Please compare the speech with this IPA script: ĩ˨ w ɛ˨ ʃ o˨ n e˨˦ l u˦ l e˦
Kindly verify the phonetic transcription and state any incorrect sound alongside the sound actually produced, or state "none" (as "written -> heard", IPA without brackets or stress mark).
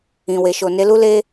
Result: ɛ˨ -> e˨